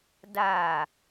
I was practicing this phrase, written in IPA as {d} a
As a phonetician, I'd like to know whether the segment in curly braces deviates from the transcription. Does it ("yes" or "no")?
no